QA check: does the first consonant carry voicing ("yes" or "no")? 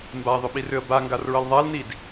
yes